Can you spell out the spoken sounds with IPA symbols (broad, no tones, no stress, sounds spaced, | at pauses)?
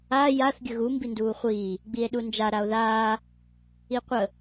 a j a θ ɡʲ ə ɣ u m b i n d uː χʷ iː | ɡ͡b i e̯ ɗ u n d͡ʒ a ɾ a o̯ ð aː | i qʷ ə